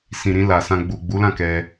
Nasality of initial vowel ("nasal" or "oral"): nasal